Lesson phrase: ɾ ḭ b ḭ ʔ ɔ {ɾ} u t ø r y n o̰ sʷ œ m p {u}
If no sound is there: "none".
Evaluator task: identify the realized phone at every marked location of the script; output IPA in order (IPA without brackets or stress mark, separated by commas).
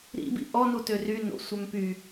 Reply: n, y